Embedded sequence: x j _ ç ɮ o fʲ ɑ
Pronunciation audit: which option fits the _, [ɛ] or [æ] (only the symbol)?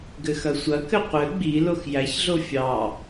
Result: æ